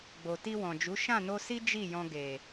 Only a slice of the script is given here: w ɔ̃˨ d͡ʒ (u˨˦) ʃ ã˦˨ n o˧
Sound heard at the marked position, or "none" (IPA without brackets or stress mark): u˨˦